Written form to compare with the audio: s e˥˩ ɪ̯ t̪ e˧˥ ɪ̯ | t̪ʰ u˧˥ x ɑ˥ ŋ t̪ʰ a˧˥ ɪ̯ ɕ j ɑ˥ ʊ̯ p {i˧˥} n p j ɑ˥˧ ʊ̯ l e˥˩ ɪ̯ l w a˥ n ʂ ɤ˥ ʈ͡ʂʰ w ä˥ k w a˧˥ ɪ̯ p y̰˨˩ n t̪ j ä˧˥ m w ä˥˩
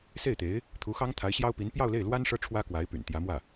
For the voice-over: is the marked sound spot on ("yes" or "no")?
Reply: yes